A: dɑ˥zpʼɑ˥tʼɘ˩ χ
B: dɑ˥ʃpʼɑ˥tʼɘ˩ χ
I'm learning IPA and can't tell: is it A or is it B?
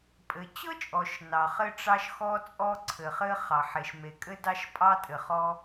B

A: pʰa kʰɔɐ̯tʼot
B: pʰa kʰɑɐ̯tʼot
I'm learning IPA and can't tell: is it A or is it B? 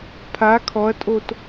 A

